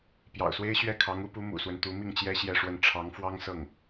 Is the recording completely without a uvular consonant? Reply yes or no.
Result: yes